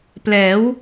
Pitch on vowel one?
rising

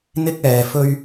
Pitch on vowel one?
high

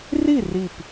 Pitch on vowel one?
falling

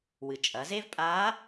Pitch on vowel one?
low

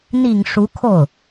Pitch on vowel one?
low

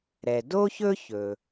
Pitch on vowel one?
low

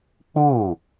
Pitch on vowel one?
falling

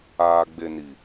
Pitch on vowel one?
low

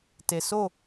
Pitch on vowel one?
low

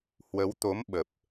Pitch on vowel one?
rising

